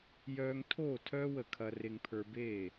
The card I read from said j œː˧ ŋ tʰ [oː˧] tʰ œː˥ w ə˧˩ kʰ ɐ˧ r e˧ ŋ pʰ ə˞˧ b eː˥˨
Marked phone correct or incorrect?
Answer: incorrect